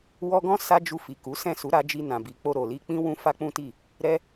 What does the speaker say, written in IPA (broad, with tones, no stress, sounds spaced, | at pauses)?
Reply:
w ɔ˧ ɡ ɔ̃˦ s a˦ d͡ʒ u˧ f i˨ k u˨˦ s ɛ̃˦˨ s u˨˦ ɾ a˧ d͡ʒ i˧ n ã˨ b i˨ k͡p o˧ ɾ o˨ l i˧ k͡p ĩ˦ w ũ˦ f a˦ k͡p ũ˦ t i˦˨ | ɾ ɛ˦